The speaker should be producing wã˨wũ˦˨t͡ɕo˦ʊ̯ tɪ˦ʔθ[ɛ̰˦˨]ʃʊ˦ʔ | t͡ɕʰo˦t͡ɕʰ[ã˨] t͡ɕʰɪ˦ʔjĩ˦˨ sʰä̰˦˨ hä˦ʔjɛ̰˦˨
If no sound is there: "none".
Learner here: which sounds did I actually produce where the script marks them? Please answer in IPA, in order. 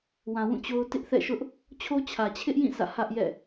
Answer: ɛ̰˦˨, ä˨

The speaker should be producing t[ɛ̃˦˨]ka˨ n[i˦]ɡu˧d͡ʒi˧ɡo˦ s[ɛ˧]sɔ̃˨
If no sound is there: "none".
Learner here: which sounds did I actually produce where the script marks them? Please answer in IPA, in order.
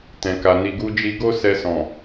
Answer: ɛ̃˨, i˨, ɛ˧

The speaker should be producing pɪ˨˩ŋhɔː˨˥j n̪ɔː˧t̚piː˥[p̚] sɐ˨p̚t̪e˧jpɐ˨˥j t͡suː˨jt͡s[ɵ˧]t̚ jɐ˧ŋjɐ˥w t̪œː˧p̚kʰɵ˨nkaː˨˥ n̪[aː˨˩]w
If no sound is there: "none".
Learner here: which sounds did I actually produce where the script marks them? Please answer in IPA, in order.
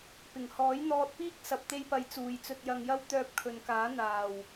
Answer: k̚, ɵ˧, aː˨˩

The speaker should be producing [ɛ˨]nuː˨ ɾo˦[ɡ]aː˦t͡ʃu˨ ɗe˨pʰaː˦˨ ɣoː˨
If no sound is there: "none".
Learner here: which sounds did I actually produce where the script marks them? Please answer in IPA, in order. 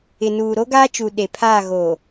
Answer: ɪ˨, ɡ

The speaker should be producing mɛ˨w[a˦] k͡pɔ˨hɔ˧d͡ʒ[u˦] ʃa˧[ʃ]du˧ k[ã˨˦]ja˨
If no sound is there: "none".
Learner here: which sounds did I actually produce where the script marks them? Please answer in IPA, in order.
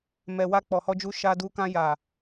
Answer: a˧, u˧, none, ã˧

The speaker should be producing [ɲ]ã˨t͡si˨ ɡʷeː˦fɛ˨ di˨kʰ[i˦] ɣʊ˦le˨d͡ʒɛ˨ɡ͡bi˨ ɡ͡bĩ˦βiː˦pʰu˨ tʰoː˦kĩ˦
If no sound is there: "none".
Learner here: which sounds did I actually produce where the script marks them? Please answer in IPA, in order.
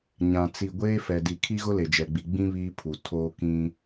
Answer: ɲ, i˦

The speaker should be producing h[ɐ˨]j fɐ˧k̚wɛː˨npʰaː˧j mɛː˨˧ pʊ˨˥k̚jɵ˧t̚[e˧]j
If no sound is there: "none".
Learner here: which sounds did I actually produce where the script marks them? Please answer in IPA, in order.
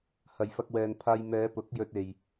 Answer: ɐ˨, e˨

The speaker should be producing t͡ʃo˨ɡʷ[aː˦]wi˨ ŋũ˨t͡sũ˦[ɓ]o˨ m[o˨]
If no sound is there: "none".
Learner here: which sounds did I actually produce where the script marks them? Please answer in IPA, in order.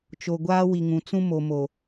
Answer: aː˦, m, o˨

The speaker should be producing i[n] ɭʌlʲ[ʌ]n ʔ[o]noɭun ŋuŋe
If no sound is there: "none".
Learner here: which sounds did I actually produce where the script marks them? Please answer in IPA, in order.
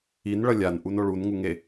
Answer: n, a, u

